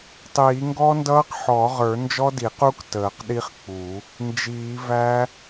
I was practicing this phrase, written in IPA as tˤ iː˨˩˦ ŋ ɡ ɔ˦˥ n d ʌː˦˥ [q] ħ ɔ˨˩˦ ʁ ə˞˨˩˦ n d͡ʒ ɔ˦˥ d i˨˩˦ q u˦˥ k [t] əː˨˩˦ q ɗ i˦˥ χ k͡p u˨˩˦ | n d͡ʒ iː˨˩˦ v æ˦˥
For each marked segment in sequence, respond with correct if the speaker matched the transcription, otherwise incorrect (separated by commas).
correct, correct